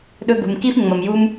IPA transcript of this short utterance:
ɗ ɵ˧ ɡ ṳ˩ m k i˥ f ŋ͡m ɐ˩ m j u˧ m

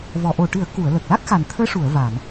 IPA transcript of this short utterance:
v ɔ˨˩˨ ʔ o˨˩ ʈ ɨ˨˩˦ ə̯ k u˨˩˨ ə̯ l ə˨˩ k̚ l a˦˥ k̚ x a˨˩ n t̪ʰ əː˧˥ ʂ u˨˩˨ ə̯ v a˨˩˨ n

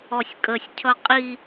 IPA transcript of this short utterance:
ɔ sʲ kʼ ə sʲ cʰ ʌ qʼ i

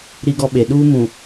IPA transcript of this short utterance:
ɾ i˦ ɡ ɔ˦ ɓ e˨ ɗ uː˦ m ũ˨

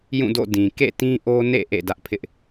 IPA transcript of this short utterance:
j ũ˦˨ d o̰˦˨ d ĩ˨ k ḛ˦˨ t ĩ˦ ʔ o˦ n ḛ˦˨ ʔ ḛ˦˨ d ä˦ ʔ pʰ ɪ˦ ʔ

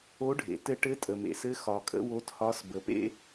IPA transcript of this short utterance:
o˧˥ ɖʱ ḛ˩ t ɘ˧ ʈ ɘ˧˥ tʼ ə˩ m ḛ˩ s ɘ˧˥ x ɒ˩ kʼ ə̰˥ w o˧˥ t h ɒ˧˥ s b ə˩ p ḛ˥

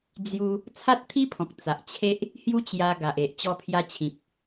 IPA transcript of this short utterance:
d͡z j u˦ | t͡sʰ a˦ t̚ t̪ʰ i˦ pʰ ɔ̃˨ k̚ t͡s a˨ ʔ t͡ɕʰ e˦ ʔ | h j u˦ t͡ɕ j a˧ ɡ a˨ ʔ e˨ ʔ t͡ɕ ɔ˧ pʰ j a˧ t͡ɕʰ ĩ˨ p̚

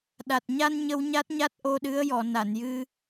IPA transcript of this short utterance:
ɗ a˨˩ t̚ ɲ a˧ n ɲ ə˧ w ɲ a˦˥ t̚ ɲ a˦˥ t̚ ʔ o˧ ɗ ɨ˧˥ ə̯ j ɔ˨˩˨ n a˨˩˨ n j ɨ˧

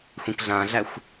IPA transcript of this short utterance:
xʷ ĩ k ɮ ã ɮ æ xʷ

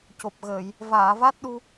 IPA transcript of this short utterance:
c o˨˩ p̚ ɣ əː˨˩˨ j | v aː˨˩˨ v a˦˥ t̚ ɗ u˧

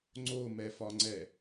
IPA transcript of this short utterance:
ŋ͡ǀ o m ɛ f ɒ ŋ͡ǀ ɛ

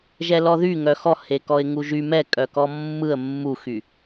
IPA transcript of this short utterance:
ʒ ɛ l ɔ ð y ŋ œ x ɔ h e k ɔ ɪ̯ ŋ u ʒ y m ɛ kʼ œ k ɔ mː ɯ ə̯ mː u x y

